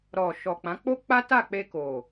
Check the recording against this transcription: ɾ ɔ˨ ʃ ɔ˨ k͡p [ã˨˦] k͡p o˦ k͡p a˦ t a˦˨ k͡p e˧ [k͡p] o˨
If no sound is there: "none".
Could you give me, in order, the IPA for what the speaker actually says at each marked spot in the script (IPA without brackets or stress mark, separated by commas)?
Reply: ã˨˦, k